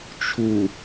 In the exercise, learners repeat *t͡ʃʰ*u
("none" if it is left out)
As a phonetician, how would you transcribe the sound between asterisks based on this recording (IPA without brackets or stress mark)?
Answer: t͡ʃʰ